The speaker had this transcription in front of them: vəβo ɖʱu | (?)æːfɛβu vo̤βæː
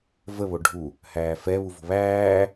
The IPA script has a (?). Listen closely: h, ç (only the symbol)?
h